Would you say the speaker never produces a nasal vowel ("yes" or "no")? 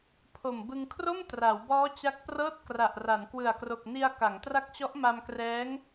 yes